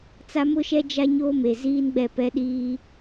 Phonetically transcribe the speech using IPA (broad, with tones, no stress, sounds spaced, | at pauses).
t͡s a˦ m ʊ˦ ʃ ɛ˦ d͡ʒ a˦ ɲ oː˦ m e˨ z iː˦ n ɡ͡b ɛ˦˨ p ɛ˦ ɗ iː˦